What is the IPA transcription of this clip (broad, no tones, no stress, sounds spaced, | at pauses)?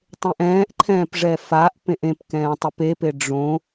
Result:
tˤ ẽ ʔ ɛ̃ː ʔ ǃʰ ɛ̃ː p ʐ ɛ f a ʔ p ẽ ʔ ẽ p k ɛ̃ː tˤ i p e p e ɖ͡ʐ õ